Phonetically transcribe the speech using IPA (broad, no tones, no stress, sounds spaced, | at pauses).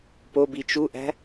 p o b i t͡ʃ u ʔ æ̤